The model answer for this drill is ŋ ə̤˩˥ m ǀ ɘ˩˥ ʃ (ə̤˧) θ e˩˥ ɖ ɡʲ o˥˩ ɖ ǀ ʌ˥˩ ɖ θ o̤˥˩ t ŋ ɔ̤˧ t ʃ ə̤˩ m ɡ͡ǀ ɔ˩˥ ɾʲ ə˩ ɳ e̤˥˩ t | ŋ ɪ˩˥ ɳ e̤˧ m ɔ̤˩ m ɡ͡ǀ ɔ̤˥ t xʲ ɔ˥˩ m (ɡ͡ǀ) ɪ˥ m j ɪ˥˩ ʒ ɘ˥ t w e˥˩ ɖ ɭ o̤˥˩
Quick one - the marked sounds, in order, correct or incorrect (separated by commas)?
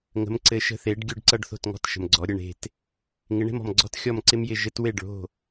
correct, incorrect